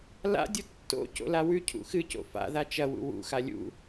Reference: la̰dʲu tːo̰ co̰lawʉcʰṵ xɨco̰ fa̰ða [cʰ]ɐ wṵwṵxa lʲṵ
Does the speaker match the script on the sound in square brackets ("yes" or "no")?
no